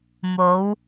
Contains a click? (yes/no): no